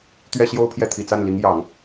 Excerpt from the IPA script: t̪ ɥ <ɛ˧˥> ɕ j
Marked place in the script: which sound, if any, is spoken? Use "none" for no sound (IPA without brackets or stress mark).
ɛ˥˧